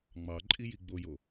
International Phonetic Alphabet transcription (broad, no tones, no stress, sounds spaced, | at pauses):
ŋ͡m ɑ ǃʼ i j i ɡ͡b o j o